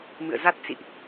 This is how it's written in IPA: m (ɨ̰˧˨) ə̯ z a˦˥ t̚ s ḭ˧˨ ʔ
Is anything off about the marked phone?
no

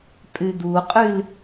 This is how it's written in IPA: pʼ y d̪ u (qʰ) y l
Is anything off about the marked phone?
yes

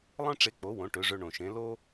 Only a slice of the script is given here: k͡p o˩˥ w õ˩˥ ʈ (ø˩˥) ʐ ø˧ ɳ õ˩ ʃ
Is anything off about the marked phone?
no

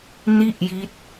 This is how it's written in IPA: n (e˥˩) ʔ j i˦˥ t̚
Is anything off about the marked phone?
yes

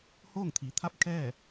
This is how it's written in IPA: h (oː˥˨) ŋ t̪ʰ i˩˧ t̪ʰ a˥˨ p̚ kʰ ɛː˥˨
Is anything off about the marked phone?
no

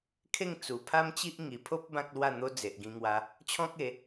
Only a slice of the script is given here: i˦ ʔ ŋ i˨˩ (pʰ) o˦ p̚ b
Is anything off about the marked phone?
no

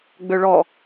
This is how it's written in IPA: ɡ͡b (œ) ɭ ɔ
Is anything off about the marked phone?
yes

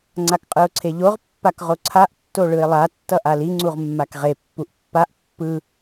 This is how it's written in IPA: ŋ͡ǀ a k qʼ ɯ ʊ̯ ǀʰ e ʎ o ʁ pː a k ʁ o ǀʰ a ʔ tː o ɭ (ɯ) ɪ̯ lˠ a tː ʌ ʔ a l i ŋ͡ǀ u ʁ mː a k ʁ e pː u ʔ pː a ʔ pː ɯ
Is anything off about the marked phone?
no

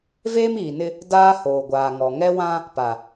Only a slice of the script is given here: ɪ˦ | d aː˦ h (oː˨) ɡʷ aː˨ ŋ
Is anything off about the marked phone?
no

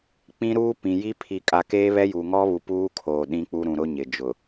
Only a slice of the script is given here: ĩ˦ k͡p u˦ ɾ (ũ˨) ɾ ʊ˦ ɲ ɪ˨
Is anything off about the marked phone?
no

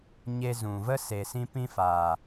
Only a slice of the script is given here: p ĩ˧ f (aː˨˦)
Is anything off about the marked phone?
yes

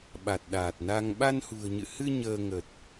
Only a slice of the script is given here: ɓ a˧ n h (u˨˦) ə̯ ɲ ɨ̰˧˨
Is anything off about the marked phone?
yes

